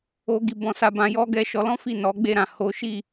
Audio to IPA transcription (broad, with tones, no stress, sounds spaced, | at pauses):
o˦ ɡ i˧ b ɔ̃˧ s a˧ b ã˧ j ɔ˦ ɡ ɛ˧ ʃ ɔ˧ l ɔ̃˦ f i˦˨ n ɔ˨˦ ɡ͡b e˦˨ ɾ ã˨ h o˨˦ ʃ i˦˨